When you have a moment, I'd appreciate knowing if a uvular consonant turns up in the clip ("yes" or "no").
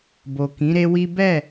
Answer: no